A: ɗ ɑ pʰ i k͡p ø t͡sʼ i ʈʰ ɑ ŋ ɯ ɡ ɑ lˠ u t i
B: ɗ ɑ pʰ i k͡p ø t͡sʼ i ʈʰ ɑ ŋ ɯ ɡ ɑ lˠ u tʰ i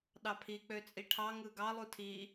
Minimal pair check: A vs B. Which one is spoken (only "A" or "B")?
B